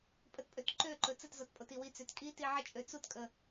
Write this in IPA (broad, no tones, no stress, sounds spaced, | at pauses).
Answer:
pʼ ə t pʼ ø t ǃ ø ǃ ɵ t͡s ə t z ɔ t pʼ o t i w i t͡s ø t kʼ i t i ʕ ə t͡ʃʼ ø t͡s u t kʼ ə